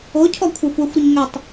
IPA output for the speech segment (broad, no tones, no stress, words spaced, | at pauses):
ocʰɔ kʷʰaxʷɛxʷɾʏɲ ŋʏtˤ